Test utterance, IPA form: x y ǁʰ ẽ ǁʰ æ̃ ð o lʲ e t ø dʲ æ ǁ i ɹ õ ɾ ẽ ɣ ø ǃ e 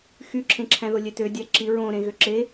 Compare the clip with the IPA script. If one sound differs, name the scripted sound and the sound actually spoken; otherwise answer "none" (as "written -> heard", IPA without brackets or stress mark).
ǃ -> ǁ